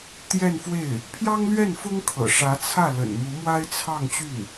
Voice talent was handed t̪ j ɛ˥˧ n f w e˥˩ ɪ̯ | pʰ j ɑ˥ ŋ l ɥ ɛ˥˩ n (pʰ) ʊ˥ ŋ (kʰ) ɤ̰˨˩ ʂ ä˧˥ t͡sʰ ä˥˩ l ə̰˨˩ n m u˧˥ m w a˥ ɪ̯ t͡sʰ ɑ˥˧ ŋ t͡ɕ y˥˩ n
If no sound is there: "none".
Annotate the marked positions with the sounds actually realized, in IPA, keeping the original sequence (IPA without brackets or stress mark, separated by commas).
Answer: f, kʰ